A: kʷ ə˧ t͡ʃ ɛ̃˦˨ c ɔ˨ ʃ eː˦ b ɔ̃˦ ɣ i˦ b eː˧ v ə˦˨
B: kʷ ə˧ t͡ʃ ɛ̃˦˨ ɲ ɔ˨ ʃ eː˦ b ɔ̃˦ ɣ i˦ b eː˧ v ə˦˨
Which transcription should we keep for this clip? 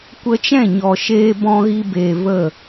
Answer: B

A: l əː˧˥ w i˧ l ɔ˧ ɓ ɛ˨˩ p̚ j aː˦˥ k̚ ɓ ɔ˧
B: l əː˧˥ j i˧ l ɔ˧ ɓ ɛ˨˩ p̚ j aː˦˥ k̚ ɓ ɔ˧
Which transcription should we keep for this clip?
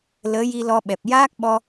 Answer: B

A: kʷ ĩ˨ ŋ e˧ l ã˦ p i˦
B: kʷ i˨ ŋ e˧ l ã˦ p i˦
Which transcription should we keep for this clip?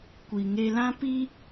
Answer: B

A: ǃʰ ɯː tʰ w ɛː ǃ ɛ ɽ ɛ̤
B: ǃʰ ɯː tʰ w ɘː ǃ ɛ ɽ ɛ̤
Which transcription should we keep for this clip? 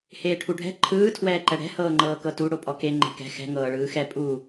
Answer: A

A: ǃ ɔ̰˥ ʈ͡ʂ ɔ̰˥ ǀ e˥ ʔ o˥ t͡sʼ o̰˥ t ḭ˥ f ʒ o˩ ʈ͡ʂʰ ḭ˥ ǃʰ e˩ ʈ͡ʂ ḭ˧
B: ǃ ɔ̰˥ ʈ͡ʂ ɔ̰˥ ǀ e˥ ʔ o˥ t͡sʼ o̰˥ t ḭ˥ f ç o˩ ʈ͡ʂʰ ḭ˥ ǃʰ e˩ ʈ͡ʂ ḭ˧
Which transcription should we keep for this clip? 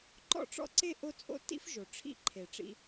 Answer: A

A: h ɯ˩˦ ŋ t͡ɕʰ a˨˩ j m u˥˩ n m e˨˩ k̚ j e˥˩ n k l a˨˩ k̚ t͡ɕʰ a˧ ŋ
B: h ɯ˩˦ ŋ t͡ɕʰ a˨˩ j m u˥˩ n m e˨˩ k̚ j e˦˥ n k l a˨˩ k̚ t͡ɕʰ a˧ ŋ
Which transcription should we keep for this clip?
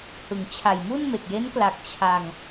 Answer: B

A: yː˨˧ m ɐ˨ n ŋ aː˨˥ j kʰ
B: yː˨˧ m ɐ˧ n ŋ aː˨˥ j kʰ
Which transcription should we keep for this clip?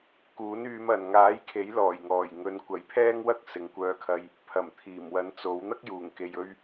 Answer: A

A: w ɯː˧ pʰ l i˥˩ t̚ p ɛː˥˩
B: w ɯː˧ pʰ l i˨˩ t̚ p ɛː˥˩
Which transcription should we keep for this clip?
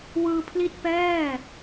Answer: A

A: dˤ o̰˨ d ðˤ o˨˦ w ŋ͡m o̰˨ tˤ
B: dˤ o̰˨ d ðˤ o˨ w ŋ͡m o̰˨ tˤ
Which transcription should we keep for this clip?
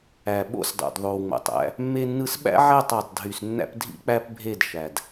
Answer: B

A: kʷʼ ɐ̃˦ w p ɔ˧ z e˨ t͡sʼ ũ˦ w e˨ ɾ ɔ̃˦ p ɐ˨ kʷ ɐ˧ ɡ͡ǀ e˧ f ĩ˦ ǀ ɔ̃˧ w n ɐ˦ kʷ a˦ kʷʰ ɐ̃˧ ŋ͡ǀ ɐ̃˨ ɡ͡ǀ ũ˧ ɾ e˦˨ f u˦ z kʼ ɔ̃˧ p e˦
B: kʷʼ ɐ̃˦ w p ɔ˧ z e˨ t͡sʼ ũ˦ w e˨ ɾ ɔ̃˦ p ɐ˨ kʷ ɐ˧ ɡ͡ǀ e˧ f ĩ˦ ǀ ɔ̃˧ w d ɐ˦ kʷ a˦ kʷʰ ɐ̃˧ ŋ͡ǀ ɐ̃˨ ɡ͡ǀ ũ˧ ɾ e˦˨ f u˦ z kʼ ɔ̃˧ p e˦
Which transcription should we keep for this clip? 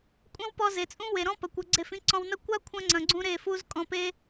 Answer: A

